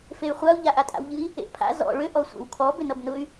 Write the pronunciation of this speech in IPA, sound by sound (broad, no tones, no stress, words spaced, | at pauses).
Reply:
fey̯χʷau̯ ʎaʔatʼa̰wʎɨi̯ | ḛʔpʰa̰ zɔ̰ ɭʏ ʔɔsʷḛwkʰɔ bʏnʌbnʊy̯